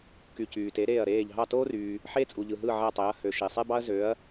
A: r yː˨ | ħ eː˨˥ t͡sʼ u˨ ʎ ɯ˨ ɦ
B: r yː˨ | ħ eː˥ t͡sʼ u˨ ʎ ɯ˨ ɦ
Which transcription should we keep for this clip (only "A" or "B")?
B